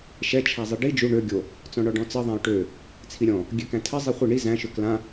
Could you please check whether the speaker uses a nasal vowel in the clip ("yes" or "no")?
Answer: yes